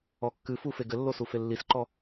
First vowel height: mid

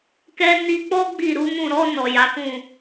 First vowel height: mid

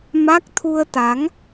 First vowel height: low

